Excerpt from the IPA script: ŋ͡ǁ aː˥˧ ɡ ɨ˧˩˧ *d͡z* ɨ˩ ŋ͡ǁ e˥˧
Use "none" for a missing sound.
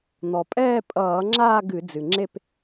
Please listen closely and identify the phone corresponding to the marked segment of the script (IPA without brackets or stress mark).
d͡z